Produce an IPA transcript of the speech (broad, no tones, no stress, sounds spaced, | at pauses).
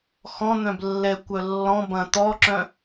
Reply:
x ɔ̃ n̪ œ̃ b lː ɛ kʷ œ lː ɔ̃ b ɐ̃ t̪ ɔ ǁ œ̃